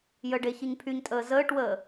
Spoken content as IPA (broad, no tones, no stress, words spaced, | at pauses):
jəɖe çiɲpʰyɲtʼəː zəːʈwəː